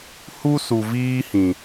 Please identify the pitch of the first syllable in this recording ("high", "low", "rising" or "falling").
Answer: high